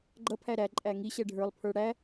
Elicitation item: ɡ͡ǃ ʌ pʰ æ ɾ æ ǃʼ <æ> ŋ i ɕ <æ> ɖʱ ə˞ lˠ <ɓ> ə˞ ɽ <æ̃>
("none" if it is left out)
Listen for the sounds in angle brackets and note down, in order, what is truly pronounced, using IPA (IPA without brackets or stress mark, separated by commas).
æ, ɛ, pʰ, æ